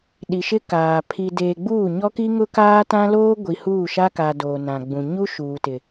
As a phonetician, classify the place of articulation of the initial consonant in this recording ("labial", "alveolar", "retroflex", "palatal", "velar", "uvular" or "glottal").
alveolar